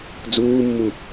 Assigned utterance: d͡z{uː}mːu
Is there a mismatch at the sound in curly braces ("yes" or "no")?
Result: no